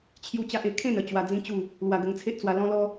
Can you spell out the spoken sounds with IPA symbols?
t͡ɕʰju˦t͡ɕa˦ʔe˧ kʰẽ˥˧nə˥˧ t͡ɕwa˧d͡zĩ˦t͡ɕu˥˧ | lwa˧ɡə˧ŋt͡sʰe˦ʔt͡swa˧ lɔ̃˦lɔ˦

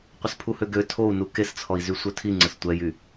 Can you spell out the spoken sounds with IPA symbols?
qʷəspʰuhøɡø tʰou̯nu kest͡sʰɔi̯zy sʷœtʰiŋ͡ǀəs tʷɛjy

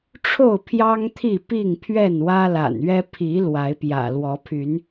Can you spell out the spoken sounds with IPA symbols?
ʈ͡ʂʰo˥˨ʊ̯pʰjɑ˦ŋ t̪ʰi˥˨pi˥˨ŋ pʰɥɛ˥˨nwä˦la̰˨˩nɥɛ˦ pʰi˨˦ lwa˨˦ɪ̯pjä̰˨˩ lwɔ˨˦pʰy˨˦n

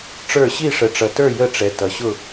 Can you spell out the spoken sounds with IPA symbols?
ʈ͡ʂə˞˦˨ ɕi˦˨ʂə˨ʈ͡ʂʌ˨tə˞˦˨ jə˦˨ʈ͡ʂɛ˨ tʌ˨ɕʊ˦˨

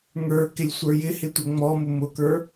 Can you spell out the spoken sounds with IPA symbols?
ŋə˞ kɪlʲsʷə˞jɪhɪ tʷəŋ͡mɔmʊ mʊkə˞

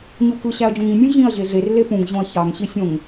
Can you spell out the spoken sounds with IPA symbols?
ɲukɯ ɕæɐ̯d͡ʒõŋĩ nʲũʑĩɐ̯ ʑeɮer lepũŋ ʑõɐ̯çɑŋ ɕisʲõŋ

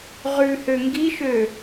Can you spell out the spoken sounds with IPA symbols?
ʁʉhø ŋɡiʃø

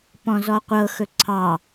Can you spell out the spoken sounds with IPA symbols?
pɔ̃zɔqʷɤ xɵǀʰɑ

